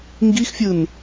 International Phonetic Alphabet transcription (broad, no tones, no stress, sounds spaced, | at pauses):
ŋ ɡ i x fʲ ɯ n